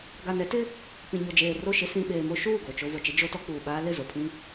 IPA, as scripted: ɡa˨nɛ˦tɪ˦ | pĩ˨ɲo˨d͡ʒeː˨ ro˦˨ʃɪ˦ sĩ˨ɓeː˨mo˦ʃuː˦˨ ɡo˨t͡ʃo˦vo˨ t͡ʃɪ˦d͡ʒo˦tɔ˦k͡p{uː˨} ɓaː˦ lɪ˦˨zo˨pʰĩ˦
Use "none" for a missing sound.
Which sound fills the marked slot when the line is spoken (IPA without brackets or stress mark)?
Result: uː˨